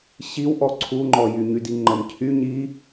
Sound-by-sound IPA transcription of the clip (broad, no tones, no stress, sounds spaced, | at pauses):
ɕ i w ʔ ɔ ǀʰ u ŋ͡ǃ ɔ j y ɲ y d i ŋ͡ǃ ə m cʰ y ɲ i